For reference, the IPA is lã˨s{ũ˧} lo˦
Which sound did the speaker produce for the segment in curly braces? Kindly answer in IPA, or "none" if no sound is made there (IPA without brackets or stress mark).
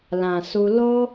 u˧